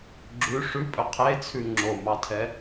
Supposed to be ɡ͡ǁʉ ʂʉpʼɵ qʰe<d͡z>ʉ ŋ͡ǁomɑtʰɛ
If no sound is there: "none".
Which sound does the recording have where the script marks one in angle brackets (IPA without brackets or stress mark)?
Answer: t͡sʰ